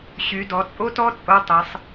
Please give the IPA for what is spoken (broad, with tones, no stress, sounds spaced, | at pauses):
ɕ y˩˧ d ɔ˩˧ t͡sʼ o˥ t ɔ˥ t͡sʼ o˧˥ tˤ e˩˧ sˤ